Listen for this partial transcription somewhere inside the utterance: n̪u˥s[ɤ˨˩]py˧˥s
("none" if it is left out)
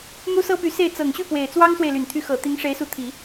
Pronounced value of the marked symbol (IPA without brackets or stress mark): ɤ˥